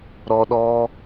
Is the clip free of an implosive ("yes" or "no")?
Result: no